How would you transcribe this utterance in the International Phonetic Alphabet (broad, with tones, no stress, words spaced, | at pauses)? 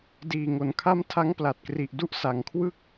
diː˨˩ŋo˨˩nkʰa˦˥m tʰa˦˥ŋ pla˨˩t̚kri˨˩ʔdu˦˥ʔ sa˨˩ŋkʰwɯ˥˩k̚